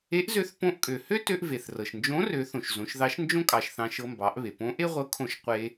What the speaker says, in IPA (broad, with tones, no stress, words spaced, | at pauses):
e˧˥ʔzø˧˥θ põ˧ʔkʼø˩hø˥ tø˧ʔve˩θrɤ˩ʃnd͡ʒõ˧˥ rø˩˧ θõ˩ʃzõ˩˧ʃðɑ˧˥ʃ nd͡ʒõ˥kʼɑ˩ʃ θɑ̃˧ʃɤ˧mbɑ˩˧ʔβe˩ põ˧˥ ʔe˥ʁʷɤ˧˥kʰõ˧ʃ qʷe˧